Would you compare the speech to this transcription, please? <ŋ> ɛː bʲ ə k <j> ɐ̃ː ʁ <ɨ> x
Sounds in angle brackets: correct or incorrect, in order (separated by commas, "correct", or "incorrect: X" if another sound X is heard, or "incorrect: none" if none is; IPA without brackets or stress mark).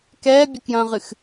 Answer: incorrect: k, correct, correct